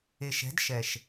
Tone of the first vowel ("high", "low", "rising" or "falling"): low